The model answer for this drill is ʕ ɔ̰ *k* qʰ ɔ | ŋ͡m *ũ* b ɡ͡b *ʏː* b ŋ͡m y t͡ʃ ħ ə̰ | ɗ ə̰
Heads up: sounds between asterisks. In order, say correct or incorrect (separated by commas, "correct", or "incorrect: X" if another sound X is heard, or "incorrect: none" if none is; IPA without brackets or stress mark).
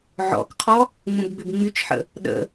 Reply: correct, correct, incorrect: ʏ